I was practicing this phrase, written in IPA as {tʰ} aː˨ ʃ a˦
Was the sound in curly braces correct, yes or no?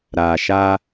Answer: no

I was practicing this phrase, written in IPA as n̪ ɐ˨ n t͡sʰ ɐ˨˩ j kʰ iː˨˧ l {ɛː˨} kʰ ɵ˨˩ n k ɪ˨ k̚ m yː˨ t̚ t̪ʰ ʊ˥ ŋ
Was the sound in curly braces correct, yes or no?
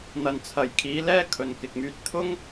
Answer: no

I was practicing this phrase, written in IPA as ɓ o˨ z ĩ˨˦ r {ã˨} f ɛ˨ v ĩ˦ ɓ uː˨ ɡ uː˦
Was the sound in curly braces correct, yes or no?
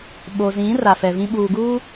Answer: no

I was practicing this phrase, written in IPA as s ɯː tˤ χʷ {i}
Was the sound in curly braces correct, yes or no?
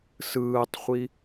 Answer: yes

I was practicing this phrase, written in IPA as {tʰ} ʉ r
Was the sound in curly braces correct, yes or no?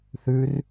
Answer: no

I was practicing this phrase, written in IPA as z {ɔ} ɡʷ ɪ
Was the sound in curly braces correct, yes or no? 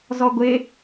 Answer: yes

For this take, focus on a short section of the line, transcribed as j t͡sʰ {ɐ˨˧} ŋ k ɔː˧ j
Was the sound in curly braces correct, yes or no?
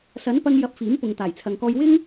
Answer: no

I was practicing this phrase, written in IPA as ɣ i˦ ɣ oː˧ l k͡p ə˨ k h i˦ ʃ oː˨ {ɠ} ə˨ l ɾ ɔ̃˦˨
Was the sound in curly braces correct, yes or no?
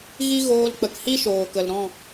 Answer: no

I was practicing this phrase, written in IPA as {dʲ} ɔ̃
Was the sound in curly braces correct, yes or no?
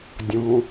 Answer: yes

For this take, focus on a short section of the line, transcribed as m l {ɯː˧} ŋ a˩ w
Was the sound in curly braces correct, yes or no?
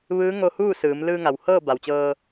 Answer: yes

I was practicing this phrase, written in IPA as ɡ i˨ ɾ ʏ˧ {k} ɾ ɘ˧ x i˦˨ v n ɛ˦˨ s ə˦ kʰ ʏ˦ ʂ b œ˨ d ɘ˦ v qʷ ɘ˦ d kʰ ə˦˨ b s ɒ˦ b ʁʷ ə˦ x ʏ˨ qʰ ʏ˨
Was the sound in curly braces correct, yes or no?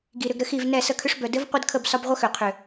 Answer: no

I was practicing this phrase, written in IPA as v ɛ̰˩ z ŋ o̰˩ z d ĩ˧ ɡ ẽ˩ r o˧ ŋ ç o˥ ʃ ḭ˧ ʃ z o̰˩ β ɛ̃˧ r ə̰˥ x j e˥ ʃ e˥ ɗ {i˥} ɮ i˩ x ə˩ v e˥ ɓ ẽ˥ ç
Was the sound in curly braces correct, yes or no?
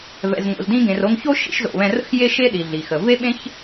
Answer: no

